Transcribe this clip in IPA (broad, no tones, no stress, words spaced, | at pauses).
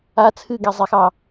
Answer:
a t͡sʰɨɡɛzˤexɑ